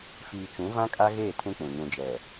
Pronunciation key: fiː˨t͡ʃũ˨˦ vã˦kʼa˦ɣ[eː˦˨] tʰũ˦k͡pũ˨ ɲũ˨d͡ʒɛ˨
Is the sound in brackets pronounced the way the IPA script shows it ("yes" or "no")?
yes